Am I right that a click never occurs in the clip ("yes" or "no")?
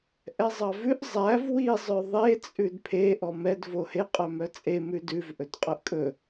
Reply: yes